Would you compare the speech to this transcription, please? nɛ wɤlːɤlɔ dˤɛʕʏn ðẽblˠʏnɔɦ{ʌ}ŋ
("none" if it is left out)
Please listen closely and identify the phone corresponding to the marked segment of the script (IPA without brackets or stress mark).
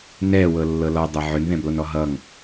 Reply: ʌ